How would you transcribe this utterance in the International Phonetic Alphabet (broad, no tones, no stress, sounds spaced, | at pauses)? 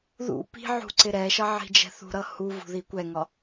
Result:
ð ṵ p i̤ ʕ ṳ ǀ ɪ ɾ ɛ ʃ ʌ ʕ i̤ d͡ʒ ɛ̤ θ ṳ ɾ ʌ h u v ṳ ð i kʷ ɛ ŋ ɒ